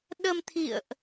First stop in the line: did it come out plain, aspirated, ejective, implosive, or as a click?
implosive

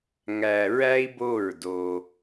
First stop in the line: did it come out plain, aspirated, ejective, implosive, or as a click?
plain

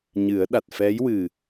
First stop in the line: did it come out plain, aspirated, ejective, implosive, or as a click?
implosive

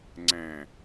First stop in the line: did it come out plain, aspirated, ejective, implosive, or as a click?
click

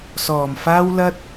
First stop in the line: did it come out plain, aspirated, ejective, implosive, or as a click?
plain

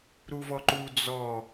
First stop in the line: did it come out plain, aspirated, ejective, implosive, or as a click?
click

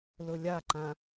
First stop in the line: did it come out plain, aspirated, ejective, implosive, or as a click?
click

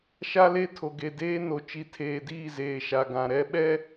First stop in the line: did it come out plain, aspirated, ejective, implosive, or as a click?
aspirated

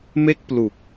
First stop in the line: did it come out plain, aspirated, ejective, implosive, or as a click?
plain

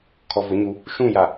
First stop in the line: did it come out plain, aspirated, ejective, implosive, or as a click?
aspirated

